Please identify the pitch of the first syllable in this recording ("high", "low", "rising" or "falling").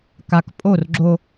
low